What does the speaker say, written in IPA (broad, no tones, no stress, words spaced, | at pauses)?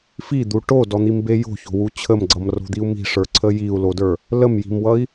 fid̪u ʈodɔn̪imbe jo̤ço̤wu t͡ɕʰəmɡ͡ǀʌmro̤d̪iu̯ mi̤ʂə˞ǀʰə jiu̯lodə˞ | ləmji̤mwʌi̯